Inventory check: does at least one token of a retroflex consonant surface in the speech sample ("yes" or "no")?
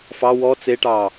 yes